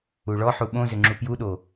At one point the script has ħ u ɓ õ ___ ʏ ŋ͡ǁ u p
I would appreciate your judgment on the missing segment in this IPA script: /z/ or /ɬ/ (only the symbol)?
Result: z